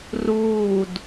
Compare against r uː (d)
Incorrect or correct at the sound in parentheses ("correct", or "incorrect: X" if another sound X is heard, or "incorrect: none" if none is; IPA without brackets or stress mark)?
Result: correct